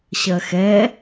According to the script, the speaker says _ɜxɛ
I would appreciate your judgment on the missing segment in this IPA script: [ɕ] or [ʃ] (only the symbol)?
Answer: ɕ